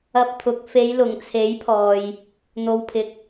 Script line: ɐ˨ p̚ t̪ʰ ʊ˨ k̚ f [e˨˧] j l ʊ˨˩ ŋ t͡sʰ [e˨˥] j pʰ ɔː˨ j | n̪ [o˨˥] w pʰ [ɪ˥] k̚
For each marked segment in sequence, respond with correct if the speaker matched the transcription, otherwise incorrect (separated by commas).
correct, correct, incorrect, incorrect